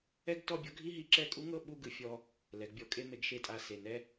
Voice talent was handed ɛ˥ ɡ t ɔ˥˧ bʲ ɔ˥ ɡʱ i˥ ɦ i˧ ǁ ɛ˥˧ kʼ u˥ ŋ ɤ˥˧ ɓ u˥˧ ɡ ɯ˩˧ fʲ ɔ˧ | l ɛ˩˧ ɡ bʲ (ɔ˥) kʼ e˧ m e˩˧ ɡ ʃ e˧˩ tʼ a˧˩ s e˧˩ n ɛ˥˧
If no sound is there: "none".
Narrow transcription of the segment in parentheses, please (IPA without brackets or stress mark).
ɔ˩˧